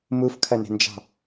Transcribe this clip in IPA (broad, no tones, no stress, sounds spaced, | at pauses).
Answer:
m u f kʰ ɐ n e̤ n d͡ʒ ɑ̤